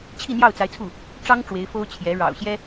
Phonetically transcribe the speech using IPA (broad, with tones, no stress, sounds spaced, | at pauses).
t͡ɕʰ i˥˧ n̪ j ɑ˥˩ ʊ̯ t͡s a˧˥ ɪ̯ t͡sʰ u˥˩ | ʈ͡ʂ ɑ˥ ŋ ʈ͡ʂ w e˧˥ ɪ̯ f o˥ ʊ̯ t͡ɕʰ j ɛ˧˥ ɻ ɑ̰˨˩ ʊ̯ ɕ j ɛ˥